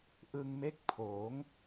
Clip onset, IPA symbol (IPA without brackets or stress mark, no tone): ʔ